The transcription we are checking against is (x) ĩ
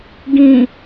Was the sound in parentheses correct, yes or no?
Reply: no